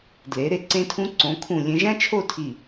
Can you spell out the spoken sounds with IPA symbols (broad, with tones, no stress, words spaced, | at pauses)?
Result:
dle˩˧ɾe˧ǀẽ˧tʰũ˧ ǀõ˩˧kʰũ˧˩ lʲẽ˧ʒæ̃˥t͡ʃʰo˥˧tʰi˧˩